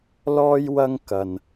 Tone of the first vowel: high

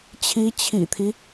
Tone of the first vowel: rising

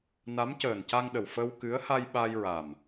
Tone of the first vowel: rising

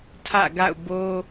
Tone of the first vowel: falling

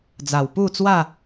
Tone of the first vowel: low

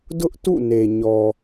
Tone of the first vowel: high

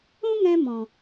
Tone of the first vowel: high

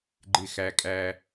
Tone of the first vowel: low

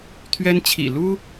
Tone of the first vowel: high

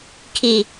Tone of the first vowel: low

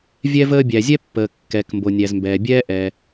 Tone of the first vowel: high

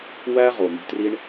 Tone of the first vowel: high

